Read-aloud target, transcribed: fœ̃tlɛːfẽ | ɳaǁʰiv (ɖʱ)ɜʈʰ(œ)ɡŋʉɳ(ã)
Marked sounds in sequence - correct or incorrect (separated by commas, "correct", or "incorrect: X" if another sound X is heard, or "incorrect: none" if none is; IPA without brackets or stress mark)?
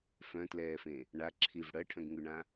incorrect: ɽ, incorrect: œ̃, correct